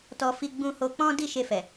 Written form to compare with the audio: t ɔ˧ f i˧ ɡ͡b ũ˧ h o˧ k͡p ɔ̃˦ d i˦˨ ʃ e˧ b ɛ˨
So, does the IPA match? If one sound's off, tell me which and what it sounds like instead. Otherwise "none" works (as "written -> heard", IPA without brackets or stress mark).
b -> f